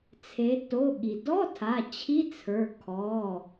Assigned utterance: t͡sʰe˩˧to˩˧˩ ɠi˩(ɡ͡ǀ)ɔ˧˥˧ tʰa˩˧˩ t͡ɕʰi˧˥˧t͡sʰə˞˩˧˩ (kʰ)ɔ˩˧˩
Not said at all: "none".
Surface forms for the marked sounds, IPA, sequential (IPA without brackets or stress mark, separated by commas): d, kʰ